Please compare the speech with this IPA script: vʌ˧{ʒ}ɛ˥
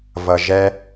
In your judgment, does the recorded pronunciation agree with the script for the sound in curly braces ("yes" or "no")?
yes